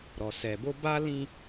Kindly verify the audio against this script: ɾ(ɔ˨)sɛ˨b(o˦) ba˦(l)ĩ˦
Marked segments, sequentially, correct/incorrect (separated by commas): correct, correct, correct